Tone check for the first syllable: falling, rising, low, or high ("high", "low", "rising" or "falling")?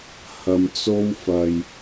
low